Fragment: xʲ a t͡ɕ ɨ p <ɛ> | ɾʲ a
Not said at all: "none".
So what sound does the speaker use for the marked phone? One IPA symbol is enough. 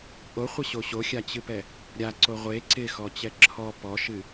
ɛ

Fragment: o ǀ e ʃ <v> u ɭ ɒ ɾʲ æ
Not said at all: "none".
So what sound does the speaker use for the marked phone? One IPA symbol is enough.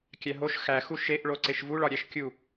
v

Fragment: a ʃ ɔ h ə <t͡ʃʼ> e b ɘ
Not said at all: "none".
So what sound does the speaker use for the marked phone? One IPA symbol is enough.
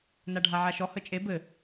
t͡ʃʼ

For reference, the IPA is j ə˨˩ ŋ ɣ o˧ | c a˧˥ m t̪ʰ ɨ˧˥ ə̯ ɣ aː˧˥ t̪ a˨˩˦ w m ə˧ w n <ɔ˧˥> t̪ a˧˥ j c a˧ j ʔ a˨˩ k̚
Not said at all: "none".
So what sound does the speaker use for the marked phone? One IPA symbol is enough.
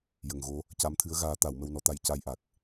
ɔ˧˥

